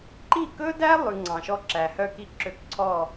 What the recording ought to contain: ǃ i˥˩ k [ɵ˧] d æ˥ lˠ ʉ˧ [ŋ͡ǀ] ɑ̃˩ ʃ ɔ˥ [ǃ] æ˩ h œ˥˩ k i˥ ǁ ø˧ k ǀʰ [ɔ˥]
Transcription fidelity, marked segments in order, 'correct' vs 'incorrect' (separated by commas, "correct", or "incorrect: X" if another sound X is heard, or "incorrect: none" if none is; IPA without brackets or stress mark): incorrect: ɵ˥, correct, incorrect: ǁ, incorrect: ɔ˥˩